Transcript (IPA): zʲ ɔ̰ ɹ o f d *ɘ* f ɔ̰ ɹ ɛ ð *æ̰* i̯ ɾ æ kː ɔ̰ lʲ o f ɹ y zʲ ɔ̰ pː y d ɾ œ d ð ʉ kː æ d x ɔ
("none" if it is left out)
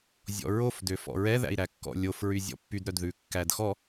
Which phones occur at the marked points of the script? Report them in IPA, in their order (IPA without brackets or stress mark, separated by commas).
ø, æ̰